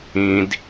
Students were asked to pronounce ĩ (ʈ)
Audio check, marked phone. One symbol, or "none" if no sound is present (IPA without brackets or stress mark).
d